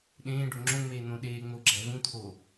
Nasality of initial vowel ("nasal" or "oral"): nasal